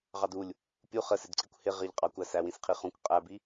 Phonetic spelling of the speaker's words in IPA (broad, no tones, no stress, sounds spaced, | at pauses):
ʁ ɑ d u lʲ | pʲ u χ ə s ɪ d ǀ i kʷ h ɪ ʁ ɪ ʎ qʼ ɑ kʷ æ s æ w ĩ s qʰ i χ ũ kʷ qʼ æ b i